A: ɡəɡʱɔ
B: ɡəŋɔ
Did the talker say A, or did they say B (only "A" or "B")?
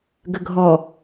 A